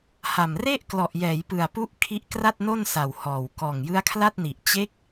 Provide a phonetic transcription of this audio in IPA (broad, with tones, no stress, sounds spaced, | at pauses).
h a˨˩ m r e˥˩ ʔ k l ɔ˨˩ ʔ j ɛː˩˦ j p ɯ˨˩ a̯ p u˦˥ ʔ kʰ i˦˥ ʔ k r a˥˩ t̚ n o˥˩ n s a˨˩ w h ɔː˨˩ w k ɔː˨˩ ŋ j ɯ˦˥ a̯ kʰ l a˥˩ t̚ n i˨˩ ʔ t͡ɕ e˦˥ k̚